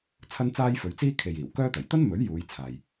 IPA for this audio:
t͡sʰ ɐ˥ n t͡s aː˥ j f ɵ˨˧ ɥ t͡s iː˥ kʰ e˨ j iː˨˩ w k œː˥ t̪ ɐ˨˩ j t̪ ɐ˥ n m ɵ˨˥ ɥ j uː˨˧ j t͡sʰ aː˨ j

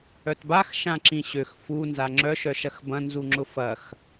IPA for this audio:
œ t b a x ʃ ã ǁ ĩ ɕ ø x f u n z a ŋ͡ǁ œ ʃ œ ʃ ɐ x b ɐ̃ n z u ŋ͡ǁ ʊ f ɐ x

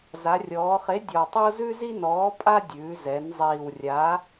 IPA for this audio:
z a˩˧ rʲ ɔː˩˧ χ e˨˥ dʲ ɔ˨˩ tˤ o˥ z ʉ˥ z i˥ n ɔː˨˥ pʼ a˥ dʲ ʉː˩˧ z ɛ˩˧ n zˤ iː˨˩ w rʲ a˨˥

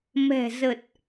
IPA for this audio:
m ɛ̤˨˩ z ə˨˩ t̚

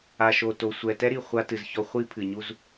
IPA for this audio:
a˨ ʃ o˨ t o˨ sʷ ɛ˨ t ɛ˦ ɾ i˨ χʷ a˦ t ɨ˨ z ç ɔ˦ χʷ i˦ pʰ ɨ˨ ɲ u˦ z

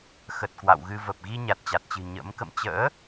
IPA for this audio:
x ə˨˩ t̚ k w a̰˧˨ w ɣ ɨ˧ v ə˨˩ p̚ ɣ i˧ ɲ a˨˩ t̚ t͡ɕ a˨˩ t̚ t͡ɕ ɨ̤˨˩ ɲ ə̰˧˥ m k ə̰˧˨ m t͡ɕ ə̰ː˧˥

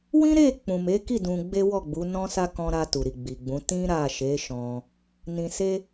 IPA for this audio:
w ĩ˦ ɾ e˦˨ k͡p ũ˨ m e˨˦ k i˦˨ d ũ˧ ɡ͡b e˦ w ɔ˦˨ ɡ͡b u˨˦ n ɔ̃˦ s a˦ k ɔ̃˧ ɾ a˧ t u˨ ɾ i˨ ɡ͡b i˨ ɡ͡b ũ˨˦ t ĩ˦ ɾ a˦˨ ʃ e˨˦ ʃ ɔ̃˧ | n ĩ˧ s e˦

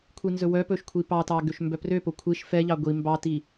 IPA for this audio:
kʷʰ i n z ɵ w œ p ɵ ʃ kʷʰ i p ɑ t ɑ ɡ ø ʃ m b œ p r ø p o kʷʰ i ʃ f ɛ ʎ ɑ ɡʷ i m b ɑ t i

